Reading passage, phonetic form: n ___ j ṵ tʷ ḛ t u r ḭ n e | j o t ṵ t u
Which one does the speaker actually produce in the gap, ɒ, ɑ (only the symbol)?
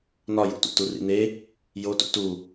ɒ